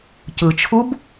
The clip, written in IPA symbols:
c ɯ t͡ʃʰ u b

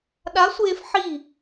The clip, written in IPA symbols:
ɗ a˧˥ sʷ eː˧ f ħ i˥˨

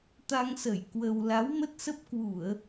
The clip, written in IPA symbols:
t̪ a˧ ŋ s ə˧˩ j k w ə˧ w l a˨˦ w m ə˦˥ t̚ s ə˦˥ p̚ k w u˧˩˨ ə̯

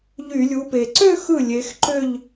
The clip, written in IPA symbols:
ʎ y˧˩˧ lʲ u˨˦ p e˨˩ ǀ ø˥˧ x ɯ˥˩ lʲ e˨˦ x ǃ ø˥˧ ʎ

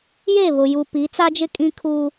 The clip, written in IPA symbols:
j e˦˨ β ʊ˨ j u˨ p i˨˦ t͡s a˦ d͡ʒ ɪ˦ kʼ ĩ˦ kʰ uː˦

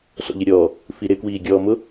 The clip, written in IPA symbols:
s ɔ̰ ʎ ɪ ɾʲ ɔː | f i ɾ ɪ k w iː ɡʲ ɔː m ʊ

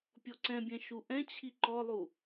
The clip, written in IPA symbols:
pʲ ɔ ǀ ɛ̃ bʲ ɛ̃ ʃ u ʔ ɛ̃ t͡ɕʰ i ǃ ɔ lˠ u

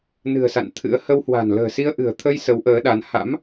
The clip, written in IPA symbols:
n ɨ̤˨˩ ə̯ s a̰˧˨ n t̪ʰ ɨ̰˧˥ ə̯ h ə˧ w h w a̤˨˩ n l ə̤ː˨˩ s i˧ ə̯ ʔ ɨ̤˨˩ ə̯ t̪ʰ ə˧ j s ə˨˦ w ʔ əː˨˦ ɗ a˨˦ n h a̰˧˥ m

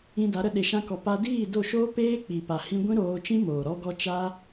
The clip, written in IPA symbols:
ĩ˧ d a˨˦ ɾ ə˧ ɗ e˧ ʃ ã˦ k ɔ˧ p a˧ d iː˦˨ d o˦˨ ʃ oː˦ p eː˦ k͡p i˨ p a˨ h ĩ˧ ɡʷ ĩ˦ ɾ oː˧ t͡ʃ ĩ˦ m oː˨ ɾ ɔ˧ ɡ ɔ˧ t͡ʃ a˦

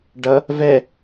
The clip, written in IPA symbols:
ɖ ʌ | v ɛ

